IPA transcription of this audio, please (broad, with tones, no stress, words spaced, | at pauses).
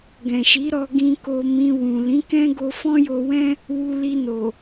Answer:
ɡɛ̃˨ʃi˨˦ɾɔ˧ ɡĩ˧ ko˧mĩ˧wũ˨ lĩ˨˦kɛ̃˦ɡo˧ fɔ̃˦jo˧wɛ̃˦ | wu˧li˧ no˨